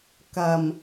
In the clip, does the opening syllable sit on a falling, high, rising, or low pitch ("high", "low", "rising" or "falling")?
low